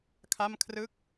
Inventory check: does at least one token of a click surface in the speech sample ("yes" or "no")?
no